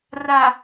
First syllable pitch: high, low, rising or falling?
low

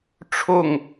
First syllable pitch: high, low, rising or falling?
falling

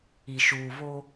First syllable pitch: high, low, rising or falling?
low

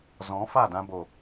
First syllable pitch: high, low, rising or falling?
rising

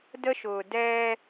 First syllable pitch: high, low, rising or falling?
high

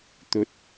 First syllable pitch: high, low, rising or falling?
rising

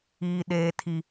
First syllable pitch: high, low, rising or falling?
high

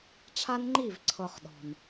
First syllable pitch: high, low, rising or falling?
high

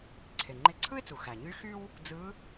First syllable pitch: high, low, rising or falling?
low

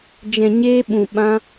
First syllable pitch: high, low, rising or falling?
low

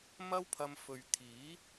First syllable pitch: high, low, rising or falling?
high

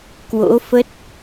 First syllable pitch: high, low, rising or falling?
rising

